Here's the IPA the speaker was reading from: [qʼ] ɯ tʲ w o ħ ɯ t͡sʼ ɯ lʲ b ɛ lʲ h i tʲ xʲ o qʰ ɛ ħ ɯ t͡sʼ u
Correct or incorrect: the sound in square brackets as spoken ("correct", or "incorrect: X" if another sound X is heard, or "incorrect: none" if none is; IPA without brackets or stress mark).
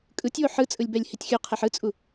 incorrect: kʼ